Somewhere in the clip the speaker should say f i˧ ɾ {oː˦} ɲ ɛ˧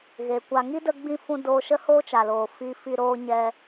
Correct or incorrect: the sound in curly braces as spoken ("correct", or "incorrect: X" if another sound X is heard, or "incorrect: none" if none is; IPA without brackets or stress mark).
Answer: incorrect: oː˧